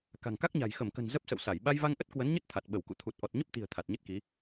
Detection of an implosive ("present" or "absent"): present